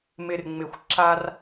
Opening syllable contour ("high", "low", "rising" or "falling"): low